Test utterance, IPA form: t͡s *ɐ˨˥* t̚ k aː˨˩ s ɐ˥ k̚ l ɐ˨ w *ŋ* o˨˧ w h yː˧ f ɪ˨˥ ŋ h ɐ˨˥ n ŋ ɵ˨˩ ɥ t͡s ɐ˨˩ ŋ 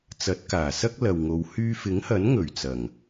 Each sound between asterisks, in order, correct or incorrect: correct, correct

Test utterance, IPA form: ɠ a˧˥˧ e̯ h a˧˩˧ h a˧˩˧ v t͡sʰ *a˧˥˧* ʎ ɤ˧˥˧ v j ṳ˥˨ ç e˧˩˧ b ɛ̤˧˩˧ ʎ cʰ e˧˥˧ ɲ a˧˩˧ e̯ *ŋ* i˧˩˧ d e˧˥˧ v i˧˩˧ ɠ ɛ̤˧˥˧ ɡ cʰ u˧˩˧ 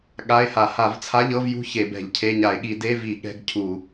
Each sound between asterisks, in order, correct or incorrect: correct, incorrect: ɠ

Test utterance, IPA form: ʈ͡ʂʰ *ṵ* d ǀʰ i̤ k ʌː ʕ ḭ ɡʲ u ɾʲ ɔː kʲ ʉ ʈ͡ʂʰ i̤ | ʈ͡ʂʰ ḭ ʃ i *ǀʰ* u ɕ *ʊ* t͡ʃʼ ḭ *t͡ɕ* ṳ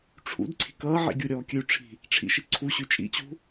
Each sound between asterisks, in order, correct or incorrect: correct, correct, incorrect: ʉ, correct

